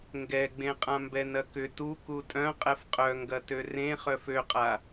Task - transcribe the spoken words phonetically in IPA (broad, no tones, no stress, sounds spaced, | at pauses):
ŋ ɡ ɛ ɡ͡b ẽ qʼ ã m b ɛ n ɐ k ʏ t u k u tʼ œ̃ qʼ ɛ f qʼ œ ŋ ɡ ɐ t ø r ẽ χ œ f ø qʼ a